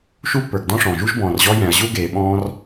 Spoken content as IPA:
ʃ u˥ pː ə˞˨ ɡ d ɔ̃˥ ʂ ɔ̃˩ ʒ u˥ ʒ b ɔ̃ː˨ r ʑ ɔ˥ j ɛ̃˨ ɐ̯ ʑ u˥ ɡ eː˨ ɓ ɔ̃ː˦ r

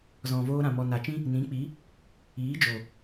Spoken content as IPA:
z ɔ̃˨ v oː˧ ɾ ã˨ m ɔ˨ n a˨ t͡ʃ ĩ˦ | n ĩ˨˦ k͡p i˨˦ | iː˨˦ d͡ʒ o˨

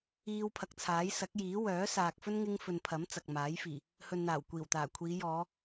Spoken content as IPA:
iː˧ w pʰ ɐ˨ k̚ t͡sʰ aː˨˥ j s ɐ˨˥ k̚ j iː˨˥ w œː˨˥ s aː˨ k̚ f ɵ˥ n ŋ ɪ˥ ŋ f ɵ˨ n pʰ ɐ˨˥ m t͡s ɐ˨ k̚ m aː˨˥ j f iː˨˩ | h ɵ˨ n n̪ aː˨˩ w kʷ iː˨˩ w t̪ aː˨˩ kʷʰ iː˨˧ j ɔː˨˧

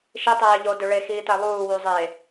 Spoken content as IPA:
ʃ i tˤ eː ʎ o d ø ɭ e x iː t æ lˠ uː w u zˤ e

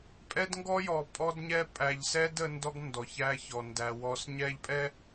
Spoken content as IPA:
pʼ ɛ˦ d ŋ ɡ ɔ˦ j ɔ˨ pʼ ɔ˦ d ɲ ɛ˦ pʼ æ˨ ʎ s ɛ˦ d ə˨˦ n d ɔ˦ ɡ n d ɔ˨ ç æ˦ ç ɔ˨ n d æ˨ w ɔ˨˦ s ɲ ɛ˦ ʎ pʼ ɛ˦

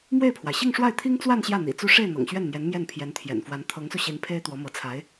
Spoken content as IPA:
m w e˥˩ ɪ̯ pʰ w a˩ ɪ̯ ɕ i˥˧ ŋ ʂ w a˥˩ ɪ̯ t̪ʰ i˥ ŋ t͡s w a˥˧ n ɕ j ä˥˩ n̪ ḭ˨˩ t͡s u˥˧ ʂ e˥˩ ɪ̯ n̪ ɤ̰˨˩ ŋ ɕ ɥ ɛ˥˩ n n̪ j ɛ˧˥ n m j ɛ˥˩ n pʰ j ɛ˧˥ n t̪ʰ j ɛ̰˨˩ n f w a˧˥ n t̪ʰ ɤ˧˥ ŋ s u˧ ɕ i˧˥ n pʰ e˥ ɪ̯ t̪ w ɔ˧˥ m ɤ˧˥ t͡sʰ a˧˥ ɪ̯

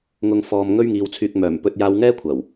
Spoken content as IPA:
ŋ ʊ˧ ŋ f ɔː˧ m ŋ ɵ˥ ɥ ŋ iː˧ w t͡sʰ yː˧ k̚ m œː˨˩ m p ɵ˧ t̚ j aː˧ w ŋ ɛː˥ kʷʰ ɐ˨˩ w

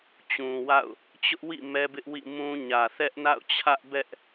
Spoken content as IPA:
t͡ɕ ũ˨ w a̰˦˨ ʊ̯ | t͡ɕ ʊ˦ ʔ w ḭ˦˨ m ɛ˦ b ɪ˦ ʔ w ḭ˦˨ m ũ˦ ɲ ä˨ θ ɛ˦ ʔ n a̰˦˨ ʊ̯ t͡ɕʰ ä˦ ʔ b ɛ˦ ʔ

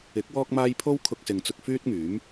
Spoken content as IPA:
ɪ˨˥ k̚ w ɔː˥ k̚ m aː˥ j pʰ o˥ w kʰ ʊ˧ k̚ s ɪ˨ ŋ t͡s ʊ˧ k̚ f yː˥ t̚ ŋ yː˨˥ m

